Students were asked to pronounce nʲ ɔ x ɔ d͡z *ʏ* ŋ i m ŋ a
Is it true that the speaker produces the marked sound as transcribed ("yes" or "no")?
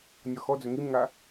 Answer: yes